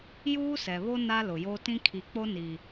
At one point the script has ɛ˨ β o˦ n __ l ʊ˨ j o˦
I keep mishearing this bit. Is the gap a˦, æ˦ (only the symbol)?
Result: a˦